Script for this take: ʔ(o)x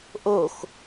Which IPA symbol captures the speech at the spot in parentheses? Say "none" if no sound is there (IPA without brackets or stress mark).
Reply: o